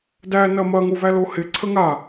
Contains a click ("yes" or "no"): yes